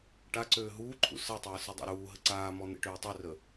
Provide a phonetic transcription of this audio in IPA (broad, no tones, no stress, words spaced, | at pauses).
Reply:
ʈaǀøː ɦuːǃʰṵ sətˤɘː sudˤa̰ɾuːɦə ǀaːmɔ n̪ḛʈøːtˤørə